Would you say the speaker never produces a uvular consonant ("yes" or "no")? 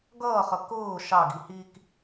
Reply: no